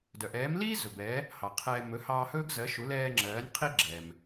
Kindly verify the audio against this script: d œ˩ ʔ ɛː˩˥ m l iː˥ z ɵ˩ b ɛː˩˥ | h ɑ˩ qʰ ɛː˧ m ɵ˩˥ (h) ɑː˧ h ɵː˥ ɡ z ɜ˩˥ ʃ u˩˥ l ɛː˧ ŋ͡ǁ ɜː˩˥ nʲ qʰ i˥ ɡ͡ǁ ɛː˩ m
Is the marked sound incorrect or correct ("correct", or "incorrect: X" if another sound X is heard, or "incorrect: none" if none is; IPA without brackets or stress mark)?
correct